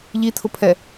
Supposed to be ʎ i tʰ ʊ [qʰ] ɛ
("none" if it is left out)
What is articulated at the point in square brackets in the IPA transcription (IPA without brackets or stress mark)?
pʰ